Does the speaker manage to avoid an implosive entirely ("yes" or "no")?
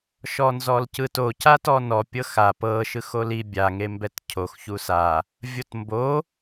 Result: yes